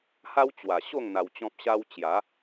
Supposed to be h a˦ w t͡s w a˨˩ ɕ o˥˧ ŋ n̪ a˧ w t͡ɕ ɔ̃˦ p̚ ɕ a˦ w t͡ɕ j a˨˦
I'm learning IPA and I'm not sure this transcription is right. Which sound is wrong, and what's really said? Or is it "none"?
t͡s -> t͡ɕ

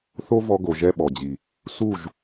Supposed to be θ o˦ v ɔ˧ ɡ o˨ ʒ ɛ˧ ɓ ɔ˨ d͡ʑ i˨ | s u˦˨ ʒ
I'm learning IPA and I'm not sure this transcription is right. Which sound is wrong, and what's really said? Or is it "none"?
none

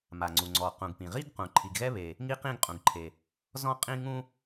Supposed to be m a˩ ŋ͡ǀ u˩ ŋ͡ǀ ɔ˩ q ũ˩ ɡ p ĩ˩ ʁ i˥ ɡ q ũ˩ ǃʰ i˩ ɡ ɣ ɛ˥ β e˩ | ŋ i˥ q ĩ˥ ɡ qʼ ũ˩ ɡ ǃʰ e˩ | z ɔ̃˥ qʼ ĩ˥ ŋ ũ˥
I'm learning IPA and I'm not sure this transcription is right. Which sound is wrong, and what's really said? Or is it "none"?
none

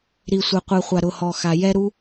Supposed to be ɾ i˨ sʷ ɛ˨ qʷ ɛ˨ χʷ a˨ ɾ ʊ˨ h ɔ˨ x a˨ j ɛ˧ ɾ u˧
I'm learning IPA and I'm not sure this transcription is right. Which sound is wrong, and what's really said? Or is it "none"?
none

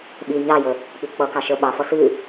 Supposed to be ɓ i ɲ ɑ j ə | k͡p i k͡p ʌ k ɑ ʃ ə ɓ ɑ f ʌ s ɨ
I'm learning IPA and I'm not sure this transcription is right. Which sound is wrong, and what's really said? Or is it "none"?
none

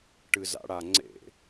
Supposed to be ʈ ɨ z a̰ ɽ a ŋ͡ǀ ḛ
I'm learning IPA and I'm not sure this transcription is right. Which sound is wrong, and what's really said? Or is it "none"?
none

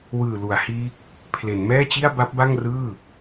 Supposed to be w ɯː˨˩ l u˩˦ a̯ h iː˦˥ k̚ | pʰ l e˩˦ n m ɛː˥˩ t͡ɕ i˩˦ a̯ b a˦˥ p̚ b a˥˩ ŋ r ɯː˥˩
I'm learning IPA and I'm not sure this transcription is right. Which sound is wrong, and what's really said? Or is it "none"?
i˩˦ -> i˥˩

